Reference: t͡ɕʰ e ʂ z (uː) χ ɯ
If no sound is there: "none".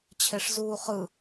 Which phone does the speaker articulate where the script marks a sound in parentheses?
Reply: uː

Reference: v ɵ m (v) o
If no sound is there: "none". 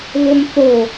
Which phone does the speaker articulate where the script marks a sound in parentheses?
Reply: θ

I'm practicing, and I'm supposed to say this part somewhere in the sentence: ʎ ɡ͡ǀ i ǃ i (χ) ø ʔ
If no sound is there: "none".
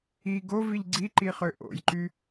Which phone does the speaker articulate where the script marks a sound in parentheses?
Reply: χ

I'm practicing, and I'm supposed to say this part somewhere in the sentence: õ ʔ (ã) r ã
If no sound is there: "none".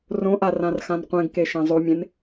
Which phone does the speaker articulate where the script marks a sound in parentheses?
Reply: a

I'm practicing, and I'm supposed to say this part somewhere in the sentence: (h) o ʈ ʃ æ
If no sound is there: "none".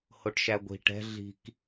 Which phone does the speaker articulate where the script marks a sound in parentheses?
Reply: h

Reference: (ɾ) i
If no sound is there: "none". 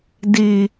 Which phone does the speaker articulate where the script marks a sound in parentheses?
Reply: d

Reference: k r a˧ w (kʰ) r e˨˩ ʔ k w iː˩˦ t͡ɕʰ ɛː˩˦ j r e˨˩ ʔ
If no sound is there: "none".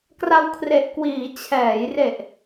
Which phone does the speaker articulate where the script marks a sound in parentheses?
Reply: kʰ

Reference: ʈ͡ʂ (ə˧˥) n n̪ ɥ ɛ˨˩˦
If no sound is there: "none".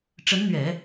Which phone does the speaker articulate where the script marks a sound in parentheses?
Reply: ə˧˥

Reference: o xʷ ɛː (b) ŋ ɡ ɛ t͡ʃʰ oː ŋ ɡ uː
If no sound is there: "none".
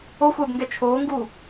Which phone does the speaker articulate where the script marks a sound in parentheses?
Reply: b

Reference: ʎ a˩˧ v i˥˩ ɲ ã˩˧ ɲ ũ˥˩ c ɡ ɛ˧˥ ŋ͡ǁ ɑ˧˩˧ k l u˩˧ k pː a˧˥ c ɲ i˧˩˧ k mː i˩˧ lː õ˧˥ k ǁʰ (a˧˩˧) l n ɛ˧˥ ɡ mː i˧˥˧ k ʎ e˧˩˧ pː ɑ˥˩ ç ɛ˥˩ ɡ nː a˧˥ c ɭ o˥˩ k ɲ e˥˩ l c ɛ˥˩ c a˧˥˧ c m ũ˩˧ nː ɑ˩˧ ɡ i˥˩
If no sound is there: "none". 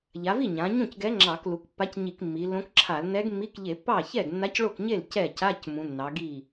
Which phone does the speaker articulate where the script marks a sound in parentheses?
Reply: a˧˩˧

